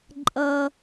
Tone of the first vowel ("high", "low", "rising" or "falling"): high